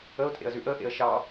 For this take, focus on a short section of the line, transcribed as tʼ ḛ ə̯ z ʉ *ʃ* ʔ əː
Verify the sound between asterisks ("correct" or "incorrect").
incorrect